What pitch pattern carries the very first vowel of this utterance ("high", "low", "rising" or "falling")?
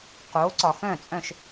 rising